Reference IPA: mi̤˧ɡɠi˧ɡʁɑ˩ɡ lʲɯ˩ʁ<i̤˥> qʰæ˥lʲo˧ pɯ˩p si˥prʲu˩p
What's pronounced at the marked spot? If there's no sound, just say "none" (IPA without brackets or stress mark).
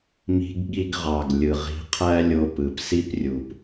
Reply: i̤˧